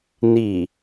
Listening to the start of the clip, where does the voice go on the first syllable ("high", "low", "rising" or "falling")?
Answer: low